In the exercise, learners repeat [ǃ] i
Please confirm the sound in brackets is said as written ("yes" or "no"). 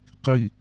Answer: no